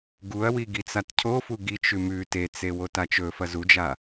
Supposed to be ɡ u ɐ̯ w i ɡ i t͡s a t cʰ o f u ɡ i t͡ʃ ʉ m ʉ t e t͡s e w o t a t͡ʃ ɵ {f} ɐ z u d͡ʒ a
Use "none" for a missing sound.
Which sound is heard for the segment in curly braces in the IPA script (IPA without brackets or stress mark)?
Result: f